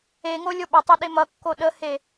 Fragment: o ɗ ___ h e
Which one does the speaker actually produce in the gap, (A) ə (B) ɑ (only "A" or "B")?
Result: A